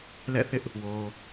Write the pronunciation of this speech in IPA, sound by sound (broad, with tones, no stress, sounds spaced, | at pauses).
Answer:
l ɛ̰˦˨ θ ɪ˦ ʔ | w o˨